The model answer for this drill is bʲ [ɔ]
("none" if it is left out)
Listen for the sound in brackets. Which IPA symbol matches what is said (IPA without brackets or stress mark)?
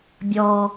ɔː